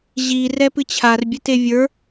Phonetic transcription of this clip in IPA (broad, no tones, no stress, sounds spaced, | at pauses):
ʑ i r ɛ p ɨ t͡ɕʰ a r bʲ ɨ t e vʲ ə˞